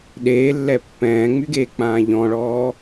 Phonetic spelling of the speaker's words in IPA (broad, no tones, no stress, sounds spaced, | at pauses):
ɗ eː lː ɛ pː ɛ̃ː ŋ͡m y ɡ eː k͡p ãː ʎ ɔ̃ ɭ ɔː